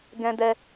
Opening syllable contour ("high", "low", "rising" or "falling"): high